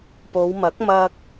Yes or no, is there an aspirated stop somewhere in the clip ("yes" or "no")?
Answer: no